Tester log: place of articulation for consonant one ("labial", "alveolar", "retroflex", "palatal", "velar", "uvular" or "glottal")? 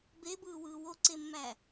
labial